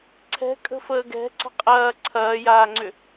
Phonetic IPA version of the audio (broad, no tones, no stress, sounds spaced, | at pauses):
ǀʰ ɛ̤ kʼ ə̤ f əː ɡ ɛ̤ ǀ ə̤ qʼ ɐː ǀʰ ɐː j aː ŋ͡ǀ ʏ